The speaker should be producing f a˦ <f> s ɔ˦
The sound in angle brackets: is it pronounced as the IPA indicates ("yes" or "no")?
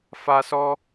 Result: no